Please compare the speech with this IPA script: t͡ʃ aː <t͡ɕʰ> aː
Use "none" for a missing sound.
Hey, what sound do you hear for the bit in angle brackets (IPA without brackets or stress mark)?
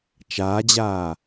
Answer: d͡ʑ